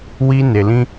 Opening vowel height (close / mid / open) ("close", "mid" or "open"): close